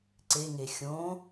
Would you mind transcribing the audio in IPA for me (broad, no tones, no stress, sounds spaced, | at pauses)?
ǀ e ŋ e xʲ õ